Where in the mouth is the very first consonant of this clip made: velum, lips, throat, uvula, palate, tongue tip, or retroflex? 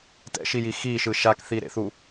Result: tongue tip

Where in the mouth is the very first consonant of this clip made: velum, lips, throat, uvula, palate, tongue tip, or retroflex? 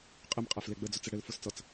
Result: uvula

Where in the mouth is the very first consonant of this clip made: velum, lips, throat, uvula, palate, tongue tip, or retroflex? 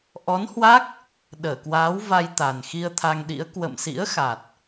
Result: throat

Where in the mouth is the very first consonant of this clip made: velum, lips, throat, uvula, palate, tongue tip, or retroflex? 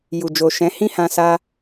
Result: palate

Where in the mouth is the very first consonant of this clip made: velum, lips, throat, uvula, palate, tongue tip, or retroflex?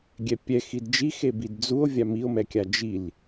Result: velum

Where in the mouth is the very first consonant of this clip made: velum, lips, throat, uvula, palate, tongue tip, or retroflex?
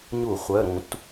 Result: palate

